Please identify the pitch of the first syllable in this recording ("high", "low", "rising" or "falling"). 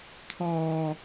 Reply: low